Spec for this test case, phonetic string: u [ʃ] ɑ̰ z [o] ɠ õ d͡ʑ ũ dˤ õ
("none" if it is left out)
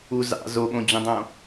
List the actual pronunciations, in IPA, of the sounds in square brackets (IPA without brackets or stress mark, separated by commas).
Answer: z, o